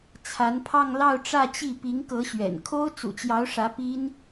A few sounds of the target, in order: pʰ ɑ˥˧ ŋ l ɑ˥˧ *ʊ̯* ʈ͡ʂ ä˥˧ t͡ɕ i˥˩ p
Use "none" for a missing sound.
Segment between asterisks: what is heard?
ʊ̯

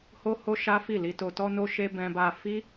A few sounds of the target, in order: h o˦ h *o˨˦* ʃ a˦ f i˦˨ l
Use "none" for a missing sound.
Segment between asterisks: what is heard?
o˦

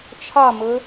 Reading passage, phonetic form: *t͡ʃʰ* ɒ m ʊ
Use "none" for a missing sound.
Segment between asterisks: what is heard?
t͡ʃʰ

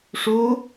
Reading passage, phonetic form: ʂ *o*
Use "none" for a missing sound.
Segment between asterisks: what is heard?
u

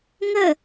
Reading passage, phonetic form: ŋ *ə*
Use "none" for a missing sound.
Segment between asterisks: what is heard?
ə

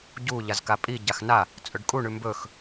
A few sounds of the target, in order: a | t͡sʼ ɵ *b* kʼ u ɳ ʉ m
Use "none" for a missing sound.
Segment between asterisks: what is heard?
ɖ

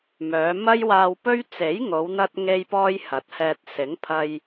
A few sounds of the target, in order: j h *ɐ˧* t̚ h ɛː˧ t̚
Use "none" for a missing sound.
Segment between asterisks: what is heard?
ɐ˨˥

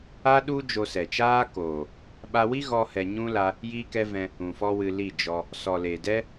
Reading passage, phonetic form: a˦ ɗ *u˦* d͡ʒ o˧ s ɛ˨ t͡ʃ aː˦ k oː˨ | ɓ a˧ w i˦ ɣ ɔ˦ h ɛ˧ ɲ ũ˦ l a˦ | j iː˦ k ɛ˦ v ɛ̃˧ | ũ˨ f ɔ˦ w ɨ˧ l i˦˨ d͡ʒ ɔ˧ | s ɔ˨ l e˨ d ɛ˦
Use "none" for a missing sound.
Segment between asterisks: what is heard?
u˦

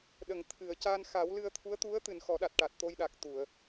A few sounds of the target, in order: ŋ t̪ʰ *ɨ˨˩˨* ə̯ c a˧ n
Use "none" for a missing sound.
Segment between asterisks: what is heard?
ɨ˨˩˨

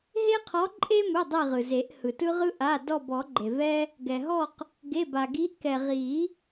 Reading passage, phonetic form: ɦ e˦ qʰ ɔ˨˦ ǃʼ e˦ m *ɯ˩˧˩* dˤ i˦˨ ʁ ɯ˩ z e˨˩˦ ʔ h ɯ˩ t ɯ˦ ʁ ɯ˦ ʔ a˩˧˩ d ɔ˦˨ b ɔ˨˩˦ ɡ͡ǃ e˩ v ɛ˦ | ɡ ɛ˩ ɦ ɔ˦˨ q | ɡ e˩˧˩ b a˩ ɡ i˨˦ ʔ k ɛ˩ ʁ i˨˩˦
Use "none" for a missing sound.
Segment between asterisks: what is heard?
ɯ˩˧˩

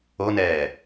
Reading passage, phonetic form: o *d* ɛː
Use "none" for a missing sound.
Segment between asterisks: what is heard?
n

